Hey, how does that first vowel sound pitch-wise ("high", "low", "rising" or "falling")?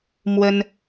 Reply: high